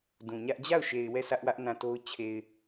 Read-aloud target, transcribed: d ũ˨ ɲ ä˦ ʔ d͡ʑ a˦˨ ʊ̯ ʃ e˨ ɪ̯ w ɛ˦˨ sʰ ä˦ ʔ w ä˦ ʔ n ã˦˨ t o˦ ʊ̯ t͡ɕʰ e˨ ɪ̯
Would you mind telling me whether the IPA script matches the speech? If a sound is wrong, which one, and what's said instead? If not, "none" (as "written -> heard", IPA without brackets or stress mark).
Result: none